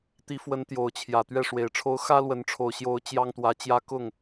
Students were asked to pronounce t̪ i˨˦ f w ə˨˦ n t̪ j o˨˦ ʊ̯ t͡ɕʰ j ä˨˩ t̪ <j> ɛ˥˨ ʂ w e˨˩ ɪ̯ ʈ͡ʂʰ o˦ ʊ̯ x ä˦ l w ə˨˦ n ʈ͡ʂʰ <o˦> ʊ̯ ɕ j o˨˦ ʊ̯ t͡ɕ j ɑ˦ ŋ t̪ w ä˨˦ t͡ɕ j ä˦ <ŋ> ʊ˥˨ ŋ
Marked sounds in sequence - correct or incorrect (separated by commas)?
incorrect, incorrect, incorrect